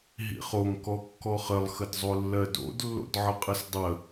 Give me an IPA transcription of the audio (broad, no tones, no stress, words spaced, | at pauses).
ɦḭχoŋ kɔkːɔχəlˠ xədzˤolːɜdo̰d lːo̰dʕəqʼəsdˤə